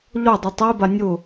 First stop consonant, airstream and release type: plain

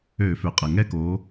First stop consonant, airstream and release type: ejective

